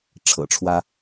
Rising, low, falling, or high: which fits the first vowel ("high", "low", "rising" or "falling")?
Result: low